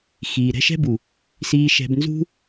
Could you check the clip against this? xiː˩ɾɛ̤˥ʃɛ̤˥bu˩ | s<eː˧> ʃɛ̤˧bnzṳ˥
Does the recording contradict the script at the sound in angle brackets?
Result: yes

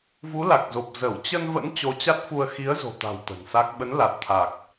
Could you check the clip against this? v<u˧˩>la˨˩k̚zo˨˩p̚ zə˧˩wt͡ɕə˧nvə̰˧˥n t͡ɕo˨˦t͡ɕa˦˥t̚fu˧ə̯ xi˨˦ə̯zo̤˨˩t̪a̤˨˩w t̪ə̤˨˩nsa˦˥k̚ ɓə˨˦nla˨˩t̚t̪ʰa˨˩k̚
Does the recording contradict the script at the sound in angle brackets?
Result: yes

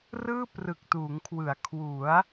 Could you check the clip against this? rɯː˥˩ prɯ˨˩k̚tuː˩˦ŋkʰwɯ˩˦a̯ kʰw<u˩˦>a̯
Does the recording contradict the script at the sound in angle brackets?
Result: no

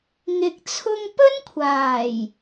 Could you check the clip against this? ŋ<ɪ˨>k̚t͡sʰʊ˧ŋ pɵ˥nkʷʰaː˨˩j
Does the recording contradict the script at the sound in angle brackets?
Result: no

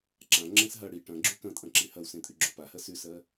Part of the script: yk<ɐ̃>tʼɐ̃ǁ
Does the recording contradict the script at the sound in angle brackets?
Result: no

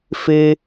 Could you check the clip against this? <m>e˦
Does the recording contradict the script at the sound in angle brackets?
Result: yes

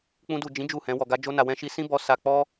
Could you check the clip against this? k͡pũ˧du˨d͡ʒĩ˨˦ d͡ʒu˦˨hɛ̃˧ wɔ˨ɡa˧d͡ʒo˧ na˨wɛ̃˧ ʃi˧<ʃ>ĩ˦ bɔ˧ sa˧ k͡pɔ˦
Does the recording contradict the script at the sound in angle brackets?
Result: yes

